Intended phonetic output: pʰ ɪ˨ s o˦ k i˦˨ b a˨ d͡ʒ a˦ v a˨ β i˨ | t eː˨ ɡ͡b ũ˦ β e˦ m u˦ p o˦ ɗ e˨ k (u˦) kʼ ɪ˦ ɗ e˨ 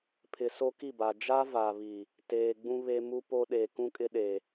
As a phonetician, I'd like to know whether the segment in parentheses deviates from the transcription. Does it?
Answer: yes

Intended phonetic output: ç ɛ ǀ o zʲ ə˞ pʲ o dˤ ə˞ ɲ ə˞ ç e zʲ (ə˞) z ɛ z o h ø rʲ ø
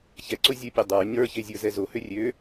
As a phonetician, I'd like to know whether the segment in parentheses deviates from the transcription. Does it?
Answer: no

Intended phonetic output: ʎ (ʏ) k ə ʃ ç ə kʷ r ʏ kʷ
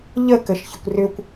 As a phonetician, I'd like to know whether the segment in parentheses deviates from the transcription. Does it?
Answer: yes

